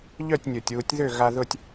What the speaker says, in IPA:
ʎœ˥˨tʲnʲo˩tʲwu˨˩˦tʲ ðø˥˨ ɣa˧ðʊ˥˨tʲ

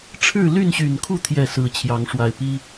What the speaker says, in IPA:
ʈ͡ʂʰɻ̩˥˨ly˥˨nɕy˨˩nkʰu˥˨ t̪ʰjɛ˥˨ sɹ̩˨˦t͡ɕʰjɑ˨˦ŋ ʂwa˨˩ɪ̯pi˦

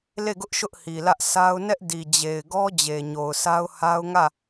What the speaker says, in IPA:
le˦˨ɡʊ˦ʔ ʃʊ˦ʔhi˨lä˦ʔ sa˦ʊ̯ nɛ˦ʔdi˨ d͡ʑe˨ɪ̯ɡɔ˦ d͡ʑe˨ɲo˨ʊ̯sa˦ʊ̯ ha˦ʊ̯ŋä˦˨

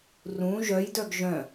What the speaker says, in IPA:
rũ ʒœjdœɡ ʒœ̃

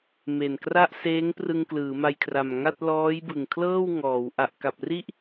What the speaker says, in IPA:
me˨˩nkra˥˩ʔ seː˦˥ŋ prɯ˧ŋklɯː˩˦ma˧jkʰra˨˩m ŋa˥˩t̚ lɔː˦˥j bɯ˨˩ŋkʰlɤː˥˩w ŋɔː˩˦w ʔa˨˩ʔka˨˩p̚ri˥˩ʔ

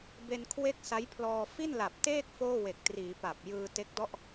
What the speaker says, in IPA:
be˧n kʰwe˥˩k̚sa˦˥jpʰlɔː˧ fi˥˩nla˨˩p̚teː˥˩k̚ foː˥˩we˨˩k̚triː˩˦ pa˨˩p̚ jɯː˧ te˦˥k̚dɔ˥˩ʔ

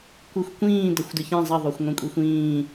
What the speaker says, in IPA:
kʷɨxʷkʷĩː dɐxʷdɨçɛ̃ zˤɐðˤoxʷŋʷɛ̃kʷʼixʷ ĩː

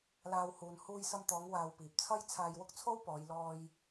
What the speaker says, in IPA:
laː˧whuː˨n huː˧jsɐ˧mt̪ɔː˨˧ŋ waː˧wpiː˨p̚t͡sʰɐ˥j t͡sʰaː˧jwʊ˥k̚t͡sʰo˥wpɔː˨˧j lɔː˧j

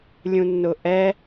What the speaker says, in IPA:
lʲũnːʊʔɛ

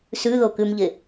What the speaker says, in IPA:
sʉðokʉmʎe

